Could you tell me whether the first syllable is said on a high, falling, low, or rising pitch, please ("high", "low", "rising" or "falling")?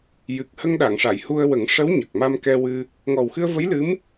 low